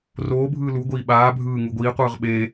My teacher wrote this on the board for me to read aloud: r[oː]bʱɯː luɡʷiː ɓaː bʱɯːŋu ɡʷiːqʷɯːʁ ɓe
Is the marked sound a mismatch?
no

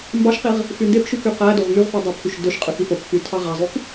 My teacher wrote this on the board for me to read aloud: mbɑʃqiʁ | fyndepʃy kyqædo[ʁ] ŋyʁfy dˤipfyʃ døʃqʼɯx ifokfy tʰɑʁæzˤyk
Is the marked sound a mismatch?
no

